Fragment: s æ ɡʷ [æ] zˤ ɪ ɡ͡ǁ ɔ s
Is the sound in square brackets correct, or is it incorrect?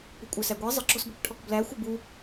incorrect